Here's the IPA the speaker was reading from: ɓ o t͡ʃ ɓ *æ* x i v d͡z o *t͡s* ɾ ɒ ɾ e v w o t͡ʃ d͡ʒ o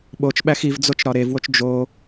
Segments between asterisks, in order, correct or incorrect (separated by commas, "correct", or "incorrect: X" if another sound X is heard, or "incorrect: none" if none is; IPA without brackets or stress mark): correct, incorrect: t͡ʃ